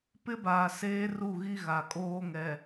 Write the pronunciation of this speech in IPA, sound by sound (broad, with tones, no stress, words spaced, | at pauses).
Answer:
pɪ˦ baː˨seː˦ru˦˨ɣi˦ ɣa˨kʼoː˦ŋɛ˨